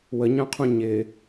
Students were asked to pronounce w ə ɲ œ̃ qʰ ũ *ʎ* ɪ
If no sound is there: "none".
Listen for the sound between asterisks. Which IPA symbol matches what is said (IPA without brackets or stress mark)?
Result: ɲ